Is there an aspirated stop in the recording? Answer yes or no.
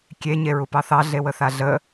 no